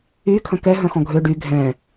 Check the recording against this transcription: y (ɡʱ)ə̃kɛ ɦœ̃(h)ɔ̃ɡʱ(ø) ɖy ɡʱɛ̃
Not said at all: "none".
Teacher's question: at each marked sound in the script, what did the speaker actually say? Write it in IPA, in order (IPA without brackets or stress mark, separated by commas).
kʰ, x, ø